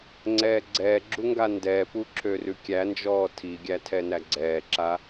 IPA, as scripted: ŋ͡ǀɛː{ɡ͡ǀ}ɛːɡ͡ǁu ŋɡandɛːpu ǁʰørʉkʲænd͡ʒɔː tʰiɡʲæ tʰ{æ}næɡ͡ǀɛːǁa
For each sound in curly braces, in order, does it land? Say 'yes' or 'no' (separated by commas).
yes, no